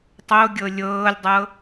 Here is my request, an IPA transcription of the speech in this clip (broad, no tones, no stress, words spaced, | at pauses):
tˤoɡʲɤ lʲɤːlʲdˤɤ